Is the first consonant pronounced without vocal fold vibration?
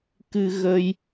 yes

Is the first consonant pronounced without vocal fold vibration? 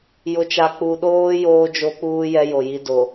no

